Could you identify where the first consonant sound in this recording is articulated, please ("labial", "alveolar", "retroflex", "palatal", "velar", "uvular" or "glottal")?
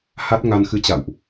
glottal